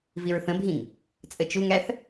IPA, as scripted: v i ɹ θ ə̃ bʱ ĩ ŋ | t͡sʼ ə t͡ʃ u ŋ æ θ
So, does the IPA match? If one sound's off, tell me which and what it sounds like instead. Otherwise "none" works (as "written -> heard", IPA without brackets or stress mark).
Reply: none